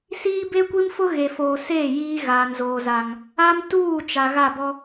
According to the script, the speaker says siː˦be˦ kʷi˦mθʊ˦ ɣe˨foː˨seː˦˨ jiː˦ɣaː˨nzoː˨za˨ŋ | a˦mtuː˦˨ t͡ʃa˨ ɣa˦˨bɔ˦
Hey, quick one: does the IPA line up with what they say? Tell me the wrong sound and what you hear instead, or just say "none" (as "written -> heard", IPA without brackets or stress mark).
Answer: θ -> f